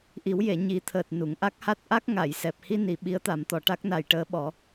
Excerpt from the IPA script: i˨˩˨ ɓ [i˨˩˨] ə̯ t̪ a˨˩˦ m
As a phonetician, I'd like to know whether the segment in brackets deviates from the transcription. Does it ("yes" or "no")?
yes